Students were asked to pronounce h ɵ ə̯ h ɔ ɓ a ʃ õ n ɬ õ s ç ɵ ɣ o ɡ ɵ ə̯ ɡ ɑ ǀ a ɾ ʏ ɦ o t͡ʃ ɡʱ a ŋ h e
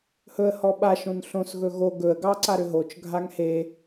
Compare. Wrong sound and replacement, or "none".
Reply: ç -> ɣ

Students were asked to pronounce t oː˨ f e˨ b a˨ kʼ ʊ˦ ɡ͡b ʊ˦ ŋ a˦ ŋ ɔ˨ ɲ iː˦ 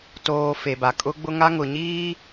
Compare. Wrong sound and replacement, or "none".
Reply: ɔ˨ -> ʊ˨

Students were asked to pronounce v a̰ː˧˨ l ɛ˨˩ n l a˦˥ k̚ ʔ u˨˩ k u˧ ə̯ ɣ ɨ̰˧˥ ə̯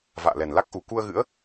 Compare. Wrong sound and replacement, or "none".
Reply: none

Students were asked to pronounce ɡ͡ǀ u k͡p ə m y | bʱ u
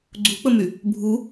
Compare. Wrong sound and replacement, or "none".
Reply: none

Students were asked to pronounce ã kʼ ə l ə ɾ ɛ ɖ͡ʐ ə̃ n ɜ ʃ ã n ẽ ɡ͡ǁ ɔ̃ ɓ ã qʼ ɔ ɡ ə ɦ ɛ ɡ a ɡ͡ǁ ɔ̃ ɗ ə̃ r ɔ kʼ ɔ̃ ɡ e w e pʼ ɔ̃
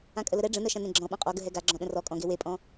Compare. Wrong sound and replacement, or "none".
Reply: none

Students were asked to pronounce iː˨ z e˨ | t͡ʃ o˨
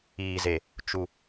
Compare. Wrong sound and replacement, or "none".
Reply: o˨ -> u˨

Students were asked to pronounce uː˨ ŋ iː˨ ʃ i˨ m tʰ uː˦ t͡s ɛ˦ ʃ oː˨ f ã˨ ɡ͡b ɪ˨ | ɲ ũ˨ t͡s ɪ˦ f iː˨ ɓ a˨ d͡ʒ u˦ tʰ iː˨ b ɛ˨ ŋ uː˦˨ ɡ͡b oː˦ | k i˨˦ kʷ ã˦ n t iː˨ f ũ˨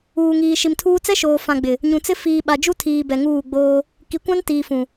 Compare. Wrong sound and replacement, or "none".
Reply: none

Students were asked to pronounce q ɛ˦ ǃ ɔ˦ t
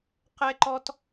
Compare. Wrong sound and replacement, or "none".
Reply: none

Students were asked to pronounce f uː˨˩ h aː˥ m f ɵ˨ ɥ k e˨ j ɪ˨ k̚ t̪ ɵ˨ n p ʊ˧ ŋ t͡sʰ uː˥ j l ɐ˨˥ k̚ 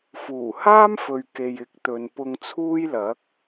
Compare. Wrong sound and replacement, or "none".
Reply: none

